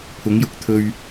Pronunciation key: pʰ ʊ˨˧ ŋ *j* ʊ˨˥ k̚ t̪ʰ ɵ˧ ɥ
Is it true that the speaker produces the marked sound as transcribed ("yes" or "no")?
yes